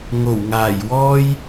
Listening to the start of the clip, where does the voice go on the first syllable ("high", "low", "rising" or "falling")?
low